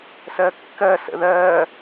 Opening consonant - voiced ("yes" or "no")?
no